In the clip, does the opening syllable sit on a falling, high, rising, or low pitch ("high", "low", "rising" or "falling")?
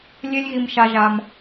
high